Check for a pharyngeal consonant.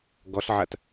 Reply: present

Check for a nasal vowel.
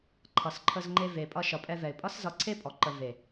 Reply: absent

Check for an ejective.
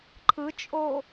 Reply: present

